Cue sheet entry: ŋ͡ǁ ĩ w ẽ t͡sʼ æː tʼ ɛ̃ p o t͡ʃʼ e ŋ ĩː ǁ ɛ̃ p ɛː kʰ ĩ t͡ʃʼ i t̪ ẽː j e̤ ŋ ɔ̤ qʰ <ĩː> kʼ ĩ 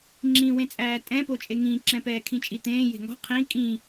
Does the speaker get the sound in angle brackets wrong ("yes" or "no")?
yes